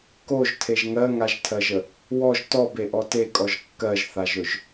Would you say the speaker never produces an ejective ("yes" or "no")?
no